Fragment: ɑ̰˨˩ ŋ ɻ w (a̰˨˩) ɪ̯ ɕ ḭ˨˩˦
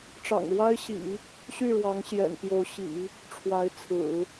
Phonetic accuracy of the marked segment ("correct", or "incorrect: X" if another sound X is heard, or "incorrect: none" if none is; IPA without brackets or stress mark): incorrect: a˥